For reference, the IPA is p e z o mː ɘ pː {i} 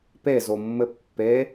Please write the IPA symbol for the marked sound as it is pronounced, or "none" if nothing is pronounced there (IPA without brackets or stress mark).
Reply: e